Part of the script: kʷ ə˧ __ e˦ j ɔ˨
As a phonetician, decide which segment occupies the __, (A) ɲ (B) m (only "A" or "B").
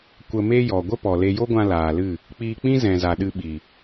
B